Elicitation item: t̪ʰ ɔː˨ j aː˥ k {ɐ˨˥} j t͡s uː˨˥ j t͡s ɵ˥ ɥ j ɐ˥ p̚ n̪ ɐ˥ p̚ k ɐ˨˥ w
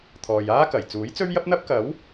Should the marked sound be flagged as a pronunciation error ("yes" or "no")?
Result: yes